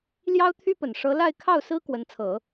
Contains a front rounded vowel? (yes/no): yes